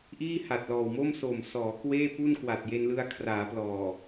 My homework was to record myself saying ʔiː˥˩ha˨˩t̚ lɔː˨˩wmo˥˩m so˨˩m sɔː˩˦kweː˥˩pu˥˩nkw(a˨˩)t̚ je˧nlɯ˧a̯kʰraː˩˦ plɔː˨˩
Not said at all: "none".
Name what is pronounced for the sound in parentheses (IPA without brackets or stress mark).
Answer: a˨˩